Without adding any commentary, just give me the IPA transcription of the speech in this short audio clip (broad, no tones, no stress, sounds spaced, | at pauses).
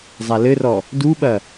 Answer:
zˤ a l ɘ r ɔ | d u ɓ ɐ